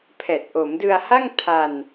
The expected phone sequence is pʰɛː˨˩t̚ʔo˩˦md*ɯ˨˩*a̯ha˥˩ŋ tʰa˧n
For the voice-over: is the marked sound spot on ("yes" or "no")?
no